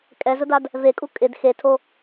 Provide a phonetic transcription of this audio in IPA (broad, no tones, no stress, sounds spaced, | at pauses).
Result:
kʼ ɛ z ʊ d a d | v e kʼ u kʼ ɪ d x e tʰ o